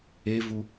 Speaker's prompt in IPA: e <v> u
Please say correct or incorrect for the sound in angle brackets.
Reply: correct